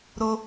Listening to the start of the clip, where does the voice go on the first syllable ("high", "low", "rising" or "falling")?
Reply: high